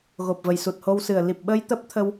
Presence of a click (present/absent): absent